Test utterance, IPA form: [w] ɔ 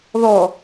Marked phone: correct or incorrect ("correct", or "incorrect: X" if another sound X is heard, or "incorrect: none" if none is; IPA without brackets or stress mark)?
incorrect: ð